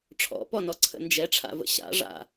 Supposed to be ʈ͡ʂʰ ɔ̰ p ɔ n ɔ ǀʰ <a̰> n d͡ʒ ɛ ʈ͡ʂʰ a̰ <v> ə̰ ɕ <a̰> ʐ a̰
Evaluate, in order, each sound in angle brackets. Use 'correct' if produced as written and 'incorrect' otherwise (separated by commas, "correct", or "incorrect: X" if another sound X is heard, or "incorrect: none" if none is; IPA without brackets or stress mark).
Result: incorrect: ə̰, correct, correct